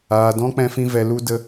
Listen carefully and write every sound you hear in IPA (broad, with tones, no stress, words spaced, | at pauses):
aː˨dɔ̃˦ k͡pɛ̃˧fĩ˧vɛ˨ lu˦də˧